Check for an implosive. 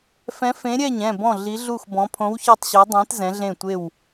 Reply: absent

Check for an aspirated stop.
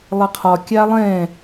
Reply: present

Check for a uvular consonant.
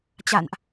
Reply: absent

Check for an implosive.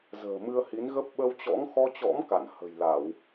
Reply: present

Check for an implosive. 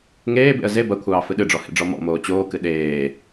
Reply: present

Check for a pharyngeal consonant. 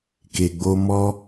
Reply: absent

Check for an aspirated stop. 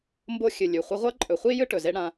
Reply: absent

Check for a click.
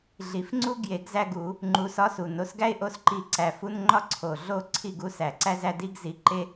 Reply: present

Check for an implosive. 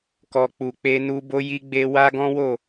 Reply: absent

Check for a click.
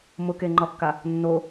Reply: present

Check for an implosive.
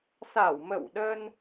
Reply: present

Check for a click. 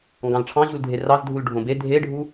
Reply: absent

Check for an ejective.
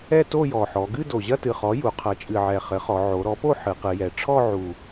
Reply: present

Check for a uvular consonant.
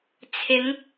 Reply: absent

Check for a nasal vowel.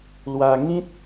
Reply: present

